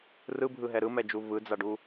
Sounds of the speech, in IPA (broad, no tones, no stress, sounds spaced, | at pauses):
r ɯ bʱ ɯ ɦ ɛ ɾ ɯ m ɛ d͡ʒ u v ɯ d͡z a ɖ u